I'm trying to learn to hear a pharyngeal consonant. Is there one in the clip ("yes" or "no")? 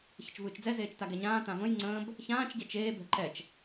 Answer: no